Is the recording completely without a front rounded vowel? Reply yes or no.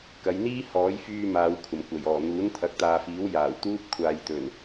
no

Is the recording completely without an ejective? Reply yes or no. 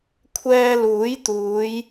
yes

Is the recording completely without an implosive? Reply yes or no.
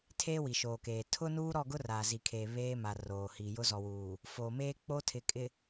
yes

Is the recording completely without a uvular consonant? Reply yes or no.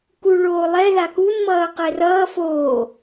no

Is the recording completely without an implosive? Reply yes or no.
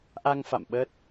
no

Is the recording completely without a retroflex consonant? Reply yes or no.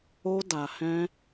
yes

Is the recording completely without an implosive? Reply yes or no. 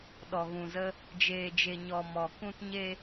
no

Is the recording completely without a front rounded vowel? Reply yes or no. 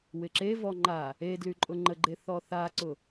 no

